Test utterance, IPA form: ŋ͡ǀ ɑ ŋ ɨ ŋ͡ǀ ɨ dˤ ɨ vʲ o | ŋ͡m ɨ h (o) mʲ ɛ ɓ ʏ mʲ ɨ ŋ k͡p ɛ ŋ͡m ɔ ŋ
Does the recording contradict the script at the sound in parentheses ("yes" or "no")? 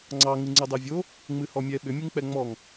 yes